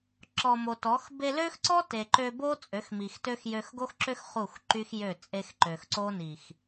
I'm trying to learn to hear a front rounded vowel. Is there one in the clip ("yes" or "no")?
yes